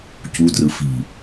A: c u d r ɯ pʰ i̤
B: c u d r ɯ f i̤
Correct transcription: B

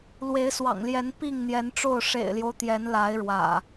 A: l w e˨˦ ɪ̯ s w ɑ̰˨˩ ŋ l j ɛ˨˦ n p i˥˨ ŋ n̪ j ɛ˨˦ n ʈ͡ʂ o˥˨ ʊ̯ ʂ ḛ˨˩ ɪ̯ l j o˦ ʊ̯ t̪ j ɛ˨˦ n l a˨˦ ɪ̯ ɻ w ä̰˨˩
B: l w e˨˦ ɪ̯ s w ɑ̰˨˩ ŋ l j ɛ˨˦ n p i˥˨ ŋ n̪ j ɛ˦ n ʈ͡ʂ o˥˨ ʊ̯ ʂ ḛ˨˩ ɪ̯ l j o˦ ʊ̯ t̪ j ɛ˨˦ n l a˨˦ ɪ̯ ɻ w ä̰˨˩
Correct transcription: A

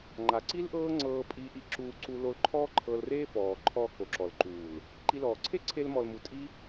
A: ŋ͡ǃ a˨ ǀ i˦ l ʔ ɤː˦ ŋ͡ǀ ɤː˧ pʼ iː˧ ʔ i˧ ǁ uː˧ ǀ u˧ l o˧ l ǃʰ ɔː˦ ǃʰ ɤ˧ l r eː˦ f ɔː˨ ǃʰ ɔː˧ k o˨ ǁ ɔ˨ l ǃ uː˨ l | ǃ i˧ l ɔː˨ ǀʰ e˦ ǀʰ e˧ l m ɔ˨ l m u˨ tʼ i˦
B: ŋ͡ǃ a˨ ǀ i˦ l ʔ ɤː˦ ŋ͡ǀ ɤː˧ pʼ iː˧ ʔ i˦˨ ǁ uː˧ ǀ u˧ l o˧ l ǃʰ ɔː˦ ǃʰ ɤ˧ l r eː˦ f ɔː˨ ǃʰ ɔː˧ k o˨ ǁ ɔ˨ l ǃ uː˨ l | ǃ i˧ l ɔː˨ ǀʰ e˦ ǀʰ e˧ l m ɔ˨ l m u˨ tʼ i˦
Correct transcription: A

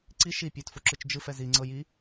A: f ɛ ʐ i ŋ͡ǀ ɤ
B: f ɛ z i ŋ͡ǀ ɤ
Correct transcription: B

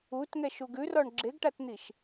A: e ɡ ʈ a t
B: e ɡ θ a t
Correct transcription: A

